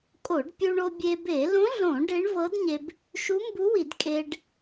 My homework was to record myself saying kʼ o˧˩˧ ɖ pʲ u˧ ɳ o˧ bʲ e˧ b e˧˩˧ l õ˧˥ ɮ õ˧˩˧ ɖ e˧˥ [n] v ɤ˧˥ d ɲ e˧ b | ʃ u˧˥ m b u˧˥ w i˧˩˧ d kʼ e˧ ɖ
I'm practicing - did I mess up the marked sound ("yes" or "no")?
yes